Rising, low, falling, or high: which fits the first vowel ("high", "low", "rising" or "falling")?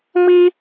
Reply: high